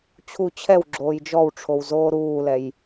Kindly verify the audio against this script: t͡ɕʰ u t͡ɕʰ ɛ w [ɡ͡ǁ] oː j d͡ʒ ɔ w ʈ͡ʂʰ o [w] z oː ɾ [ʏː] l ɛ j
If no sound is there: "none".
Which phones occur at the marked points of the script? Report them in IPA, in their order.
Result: ɡ͡ǁ, w, uː

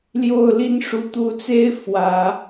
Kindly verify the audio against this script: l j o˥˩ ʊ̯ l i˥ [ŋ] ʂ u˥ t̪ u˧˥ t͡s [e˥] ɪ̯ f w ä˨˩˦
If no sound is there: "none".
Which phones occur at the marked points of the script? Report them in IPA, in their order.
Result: n, e˥

